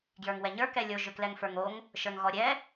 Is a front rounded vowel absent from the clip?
no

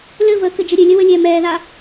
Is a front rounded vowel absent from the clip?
yes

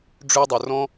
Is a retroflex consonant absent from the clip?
no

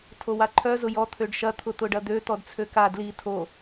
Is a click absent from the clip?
no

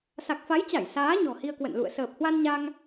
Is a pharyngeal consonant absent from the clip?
yes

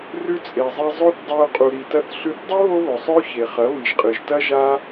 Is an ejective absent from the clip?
no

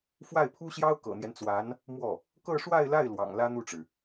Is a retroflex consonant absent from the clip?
no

